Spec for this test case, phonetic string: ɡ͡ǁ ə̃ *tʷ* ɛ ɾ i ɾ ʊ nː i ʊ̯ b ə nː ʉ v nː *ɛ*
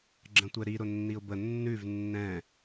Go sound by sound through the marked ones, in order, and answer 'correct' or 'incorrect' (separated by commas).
correct, incorrect